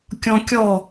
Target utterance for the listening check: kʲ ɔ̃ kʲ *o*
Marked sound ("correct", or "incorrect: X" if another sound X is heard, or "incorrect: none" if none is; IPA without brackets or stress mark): incorrect: ɔ